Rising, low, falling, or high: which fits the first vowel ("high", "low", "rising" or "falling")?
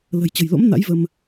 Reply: low